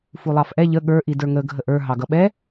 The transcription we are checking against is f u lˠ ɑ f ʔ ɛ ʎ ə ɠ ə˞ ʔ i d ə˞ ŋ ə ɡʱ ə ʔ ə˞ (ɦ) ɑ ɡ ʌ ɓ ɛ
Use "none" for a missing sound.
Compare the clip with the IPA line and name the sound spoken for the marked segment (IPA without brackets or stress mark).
ɦ